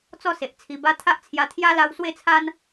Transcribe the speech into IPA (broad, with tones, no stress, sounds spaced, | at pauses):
t͡s ɔ˥˧ s e˨ ʔ t͡sʰ i˨˩ b a˧ t̪ʰ a˦ ʔ t͡sʰ j a˧ t̪ʰ j a˦ l a˧ w s w e˥˧ t͡sʰ a˦ n